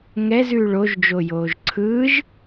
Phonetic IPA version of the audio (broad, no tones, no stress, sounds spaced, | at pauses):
ŋ ɛ z ʉː ɭ o ʒ d͡ʒ o j oː ʒ ǀʰ ɯː ʒ